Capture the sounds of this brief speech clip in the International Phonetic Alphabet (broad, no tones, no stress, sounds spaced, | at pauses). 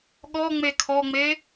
ɠ ɔ ŋ͡m e kʰ ɔ ŋ͡m e